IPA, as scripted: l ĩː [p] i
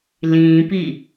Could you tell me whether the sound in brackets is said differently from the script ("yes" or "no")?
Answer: no